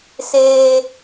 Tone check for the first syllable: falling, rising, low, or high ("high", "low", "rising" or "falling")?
high